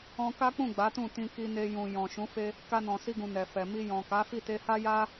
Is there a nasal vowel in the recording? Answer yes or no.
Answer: yes